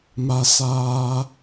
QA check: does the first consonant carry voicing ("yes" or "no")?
yes